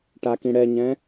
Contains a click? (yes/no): no